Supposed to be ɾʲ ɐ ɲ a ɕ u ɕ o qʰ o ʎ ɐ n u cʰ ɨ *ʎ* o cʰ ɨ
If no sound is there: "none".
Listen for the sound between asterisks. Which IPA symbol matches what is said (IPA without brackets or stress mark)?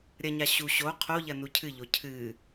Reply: ʎ